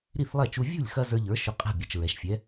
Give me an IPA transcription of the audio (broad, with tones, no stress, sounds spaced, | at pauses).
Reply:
ɾ i˥˩ θ lˠ ɛ˥˩ t͡ʃ u˧ vʲ ṳ˥˩ lʲ x ɐ˧ z ə˞˧ ʎ ə˞˩˥ ʃ ɵ˧ qʼ ɛ̤˥˩ bʲ ɛ˩ t͡ʃ ɹ ɛ˩ ʃ fʲ ɛ˩˥